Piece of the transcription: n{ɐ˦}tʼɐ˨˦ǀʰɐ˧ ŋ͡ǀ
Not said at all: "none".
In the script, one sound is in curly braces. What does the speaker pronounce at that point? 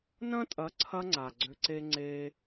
ɐ̃˦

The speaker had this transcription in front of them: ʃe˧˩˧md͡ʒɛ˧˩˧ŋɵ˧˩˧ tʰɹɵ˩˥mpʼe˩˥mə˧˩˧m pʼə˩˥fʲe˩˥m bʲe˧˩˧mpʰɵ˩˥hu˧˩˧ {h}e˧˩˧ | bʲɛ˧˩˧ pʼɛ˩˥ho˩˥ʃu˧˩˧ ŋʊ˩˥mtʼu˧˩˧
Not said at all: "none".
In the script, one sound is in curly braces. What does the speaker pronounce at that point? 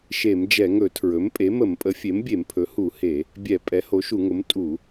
h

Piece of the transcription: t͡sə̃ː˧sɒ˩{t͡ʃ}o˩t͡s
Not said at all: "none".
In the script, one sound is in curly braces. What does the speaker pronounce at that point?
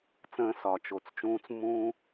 t͡ʃ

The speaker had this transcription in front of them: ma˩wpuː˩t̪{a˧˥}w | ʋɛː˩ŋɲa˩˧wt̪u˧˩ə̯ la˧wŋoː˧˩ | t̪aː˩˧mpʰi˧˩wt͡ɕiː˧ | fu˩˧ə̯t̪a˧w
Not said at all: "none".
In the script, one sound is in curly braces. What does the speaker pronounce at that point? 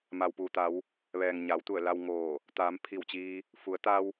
a˩˧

